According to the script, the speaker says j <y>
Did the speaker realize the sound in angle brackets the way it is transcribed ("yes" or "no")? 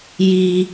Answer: no